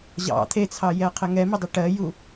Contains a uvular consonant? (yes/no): yes